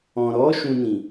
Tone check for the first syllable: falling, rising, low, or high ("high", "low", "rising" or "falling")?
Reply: low